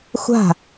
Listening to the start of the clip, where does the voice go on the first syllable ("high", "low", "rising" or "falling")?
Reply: falling